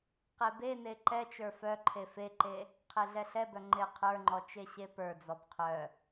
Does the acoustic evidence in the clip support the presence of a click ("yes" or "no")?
yes